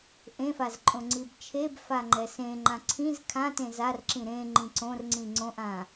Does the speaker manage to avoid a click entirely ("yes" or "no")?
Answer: no